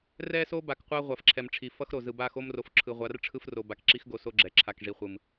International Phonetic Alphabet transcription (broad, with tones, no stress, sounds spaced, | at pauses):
r ɛ˦ s o˦ b a˨ k qʷ a˦ ʁʷ a˨ f ǁʰ ɛ˨ m ʈ͡ʂʰ i˨ f ʌ˦ x ɾ o˨ z ɯ˨ b a˦˨ x o˦ m r o˨ f ǁʰ ɯ˨ ʁʷ a˨˦ r ʈ͡ʂʰ ɯ˦ f r o˨ b a˨ k ǁ i˦ x ɡ o˨ s o˦ ɡ͡ǁ ɛ˨ ǁʰ a˨ k ʐ i˨ χʷ ɯ˨ m